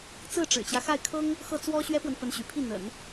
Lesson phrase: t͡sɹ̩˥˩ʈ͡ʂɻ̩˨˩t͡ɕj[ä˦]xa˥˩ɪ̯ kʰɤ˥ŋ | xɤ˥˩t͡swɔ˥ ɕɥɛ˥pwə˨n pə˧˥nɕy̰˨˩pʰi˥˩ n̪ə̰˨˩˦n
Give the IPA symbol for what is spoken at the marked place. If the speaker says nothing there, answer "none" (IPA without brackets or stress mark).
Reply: ä˦